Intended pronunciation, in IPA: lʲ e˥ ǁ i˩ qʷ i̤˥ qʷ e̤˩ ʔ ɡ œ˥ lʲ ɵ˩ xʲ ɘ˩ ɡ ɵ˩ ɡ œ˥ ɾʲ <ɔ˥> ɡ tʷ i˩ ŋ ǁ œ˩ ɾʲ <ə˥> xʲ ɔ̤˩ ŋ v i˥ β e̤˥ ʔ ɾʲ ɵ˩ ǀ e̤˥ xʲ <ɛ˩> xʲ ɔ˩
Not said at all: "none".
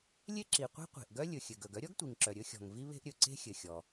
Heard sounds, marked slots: ɔ˥, ɵ˥, ɘ˩

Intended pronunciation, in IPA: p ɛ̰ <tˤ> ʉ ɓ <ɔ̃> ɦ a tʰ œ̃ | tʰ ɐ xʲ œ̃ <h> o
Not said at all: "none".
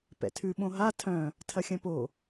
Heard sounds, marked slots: tʰ, õ, p

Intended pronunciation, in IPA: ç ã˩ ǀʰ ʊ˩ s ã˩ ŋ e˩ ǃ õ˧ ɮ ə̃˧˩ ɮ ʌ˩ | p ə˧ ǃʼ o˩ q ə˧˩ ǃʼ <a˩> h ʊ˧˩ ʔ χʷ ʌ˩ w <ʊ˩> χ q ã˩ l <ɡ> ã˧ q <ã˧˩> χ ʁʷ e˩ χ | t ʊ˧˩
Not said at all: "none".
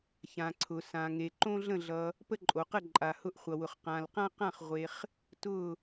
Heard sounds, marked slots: a˩, ʊ˩, q, ã˧˩

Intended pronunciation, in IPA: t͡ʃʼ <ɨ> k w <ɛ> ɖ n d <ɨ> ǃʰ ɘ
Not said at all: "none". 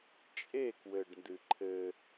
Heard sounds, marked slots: e, ɘ, ɨ

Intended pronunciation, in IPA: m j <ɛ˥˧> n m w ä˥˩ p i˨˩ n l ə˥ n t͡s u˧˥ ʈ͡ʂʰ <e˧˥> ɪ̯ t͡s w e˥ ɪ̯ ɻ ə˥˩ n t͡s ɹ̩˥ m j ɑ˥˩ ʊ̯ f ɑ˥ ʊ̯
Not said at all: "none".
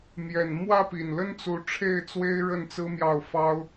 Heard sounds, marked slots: ɛ˨˩, e˥˩

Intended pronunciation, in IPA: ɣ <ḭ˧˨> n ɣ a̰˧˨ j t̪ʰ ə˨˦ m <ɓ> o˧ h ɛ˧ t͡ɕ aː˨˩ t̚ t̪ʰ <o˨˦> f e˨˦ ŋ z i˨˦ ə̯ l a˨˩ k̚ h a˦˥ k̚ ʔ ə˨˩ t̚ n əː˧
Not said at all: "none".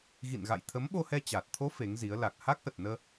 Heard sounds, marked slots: ḭ˧˨, ɓ, o˨˦

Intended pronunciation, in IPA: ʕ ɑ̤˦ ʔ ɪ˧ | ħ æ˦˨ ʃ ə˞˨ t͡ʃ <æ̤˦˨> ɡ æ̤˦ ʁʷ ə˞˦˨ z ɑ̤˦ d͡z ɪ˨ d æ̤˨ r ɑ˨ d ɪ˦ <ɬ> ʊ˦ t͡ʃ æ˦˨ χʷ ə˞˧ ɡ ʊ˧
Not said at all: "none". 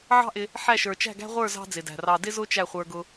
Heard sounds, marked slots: æ̤˦˨, z

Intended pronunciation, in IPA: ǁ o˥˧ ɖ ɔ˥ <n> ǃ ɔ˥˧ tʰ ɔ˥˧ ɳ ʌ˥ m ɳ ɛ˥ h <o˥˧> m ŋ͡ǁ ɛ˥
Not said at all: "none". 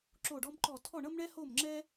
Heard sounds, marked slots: m, o˥˧

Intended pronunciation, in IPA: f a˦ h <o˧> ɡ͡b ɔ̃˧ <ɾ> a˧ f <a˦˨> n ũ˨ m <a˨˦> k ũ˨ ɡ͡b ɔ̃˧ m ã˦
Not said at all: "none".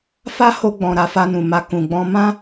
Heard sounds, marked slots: o˧, ɾ, a˧, a˧

